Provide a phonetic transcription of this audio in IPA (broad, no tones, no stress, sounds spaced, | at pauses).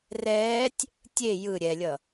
r ɛː tʲ | tʲ e j ɯ ɾʲ ɛ lʲ ʌ